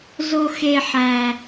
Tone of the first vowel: high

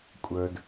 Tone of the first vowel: low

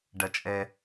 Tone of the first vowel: low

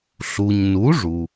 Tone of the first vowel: low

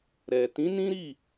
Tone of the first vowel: low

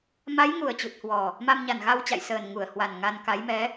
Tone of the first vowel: rising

